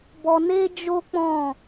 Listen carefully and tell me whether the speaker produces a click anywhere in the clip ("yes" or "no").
no